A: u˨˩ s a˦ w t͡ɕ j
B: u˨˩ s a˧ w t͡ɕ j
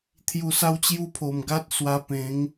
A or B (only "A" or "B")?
B